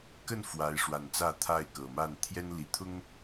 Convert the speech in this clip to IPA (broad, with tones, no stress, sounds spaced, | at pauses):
k ə˥˨ n f w a˨˦ ɪ̯ ʂ w a˨˩ n t͡s ä˥˨ t̪ʰ a˥˨ ɪ̯ k ɤ˨˩ m a˥˨ n t̪ʰ j ɛ˦ n l i˨˩ t̪ʰ ʊ˦ ŋ